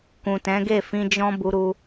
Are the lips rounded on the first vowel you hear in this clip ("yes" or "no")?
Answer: yes